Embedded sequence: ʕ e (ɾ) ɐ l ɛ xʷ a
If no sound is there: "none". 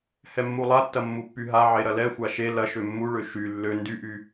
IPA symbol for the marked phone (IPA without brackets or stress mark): ɾ